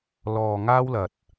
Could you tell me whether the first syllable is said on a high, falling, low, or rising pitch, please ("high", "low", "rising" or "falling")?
low